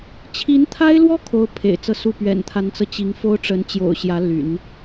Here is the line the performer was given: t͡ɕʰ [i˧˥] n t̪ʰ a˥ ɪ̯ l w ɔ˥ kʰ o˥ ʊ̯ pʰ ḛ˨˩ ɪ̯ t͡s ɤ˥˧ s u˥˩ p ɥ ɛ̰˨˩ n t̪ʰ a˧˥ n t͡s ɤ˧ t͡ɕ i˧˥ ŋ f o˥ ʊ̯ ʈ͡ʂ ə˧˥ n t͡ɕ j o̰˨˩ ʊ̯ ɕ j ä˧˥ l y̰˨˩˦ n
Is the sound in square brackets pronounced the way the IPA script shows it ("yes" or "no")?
yes